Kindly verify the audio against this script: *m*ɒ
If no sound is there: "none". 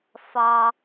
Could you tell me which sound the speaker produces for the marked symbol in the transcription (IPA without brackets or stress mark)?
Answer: f